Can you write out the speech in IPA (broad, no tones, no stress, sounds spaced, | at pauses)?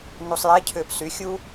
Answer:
n u sˤ j ɛ cʰ ʏː p s y xʲ u